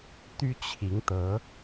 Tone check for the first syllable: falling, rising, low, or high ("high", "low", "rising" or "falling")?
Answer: high